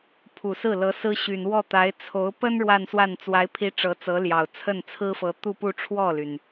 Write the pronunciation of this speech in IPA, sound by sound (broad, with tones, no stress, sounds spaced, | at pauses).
pʰ u˨˩ s ɹ̩˥˩ l ɤ˧˥ s ɹ̩˥ ɕ y˨˩ n w ɔ˥˩ t̪ a˧˥ ɪ̯ t͡sʰ o˧˥ ʊ̯ p ə˥ n ɻ w a˥˧ n s w a˥˩ n t͡s w a˧˥ ɪ̯ pʰ i˧˥ ʈ͡ʂ ɤ˧˥ t͡s ɤ˧˥ l j ɑ˨˩ ʊ̯ t͡sʰ ə˥˩ n t͡sʰ ɹ̩˥ f ɤ˧˥ t̪ u˥˧ p u˥˧ ʈ͡ʂʰ w ɔ˥˩ l y˩ n